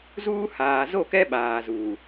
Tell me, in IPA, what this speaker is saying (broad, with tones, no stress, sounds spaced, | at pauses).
z uː˦ h aː˨ z o˦˨ k ɛ˦ ɓ aː˨ z uː˨